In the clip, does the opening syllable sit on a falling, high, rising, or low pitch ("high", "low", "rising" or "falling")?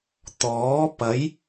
rising